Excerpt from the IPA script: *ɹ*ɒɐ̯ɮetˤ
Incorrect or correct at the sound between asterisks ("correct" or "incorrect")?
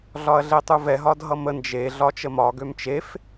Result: incorrect